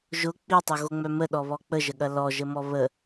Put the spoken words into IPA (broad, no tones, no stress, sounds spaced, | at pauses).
ʒ ʊ k͡p i tˤ o ɣ o ŋ͡m œ m ə ɗ ɔ β ɔ k͡p ə ʒ ə ɠ ɐ l ɔ ʒ ə m ɔ β ə